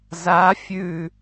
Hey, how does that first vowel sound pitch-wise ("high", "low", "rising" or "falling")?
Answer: rising